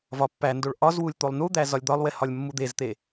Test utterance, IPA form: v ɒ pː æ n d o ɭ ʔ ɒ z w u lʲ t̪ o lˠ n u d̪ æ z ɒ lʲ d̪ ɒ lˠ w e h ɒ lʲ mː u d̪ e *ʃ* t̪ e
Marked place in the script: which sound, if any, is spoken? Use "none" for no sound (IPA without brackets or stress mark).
z